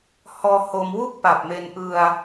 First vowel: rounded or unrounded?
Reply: rounded